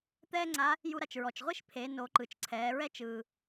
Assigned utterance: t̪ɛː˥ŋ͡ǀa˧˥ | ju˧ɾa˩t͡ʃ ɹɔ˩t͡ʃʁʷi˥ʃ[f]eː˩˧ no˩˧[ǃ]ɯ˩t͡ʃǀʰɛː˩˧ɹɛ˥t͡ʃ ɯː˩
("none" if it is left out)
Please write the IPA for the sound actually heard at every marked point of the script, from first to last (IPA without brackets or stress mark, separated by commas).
pʰ, ǃ